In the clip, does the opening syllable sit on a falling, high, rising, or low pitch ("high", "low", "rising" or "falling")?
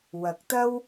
rising